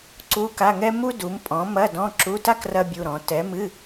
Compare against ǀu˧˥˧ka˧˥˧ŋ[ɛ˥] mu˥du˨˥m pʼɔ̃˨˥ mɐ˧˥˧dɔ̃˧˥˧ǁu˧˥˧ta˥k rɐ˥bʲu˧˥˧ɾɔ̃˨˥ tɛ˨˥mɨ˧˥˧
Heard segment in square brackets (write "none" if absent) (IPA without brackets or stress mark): ɛ˥